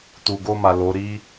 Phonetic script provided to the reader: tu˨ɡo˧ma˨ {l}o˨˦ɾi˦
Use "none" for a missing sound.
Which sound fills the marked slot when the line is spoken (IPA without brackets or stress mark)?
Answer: l